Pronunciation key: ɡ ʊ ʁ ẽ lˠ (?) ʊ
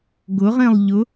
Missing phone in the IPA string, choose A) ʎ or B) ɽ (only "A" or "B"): A